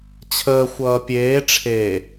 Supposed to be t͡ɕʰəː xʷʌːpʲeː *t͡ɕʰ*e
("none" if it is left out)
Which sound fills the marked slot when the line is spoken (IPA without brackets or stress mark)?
ʈ͡ʂʰ